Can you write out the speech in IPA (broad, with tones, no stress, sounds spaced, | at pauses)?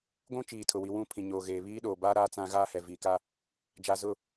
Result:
ɡʷ ũ˦ t͡ʃ iː˨ tʰ ʊ˨ w i˨ w ũ˦˨ pʰ ĩ˨ ɲ oː˨ ɣ eː˨ β iː˦ ɗ oː˨ b aː˦ ɾ aː˦ t͡s ã˦ ɣ aː˦ h ɛ˨ v iː˨ k a˦ | d͡ʒ a˨ z ʊ˦˨